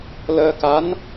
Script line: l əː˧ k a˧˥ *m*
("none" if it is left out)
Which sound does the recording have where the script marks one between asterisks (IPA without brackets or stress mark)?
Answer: n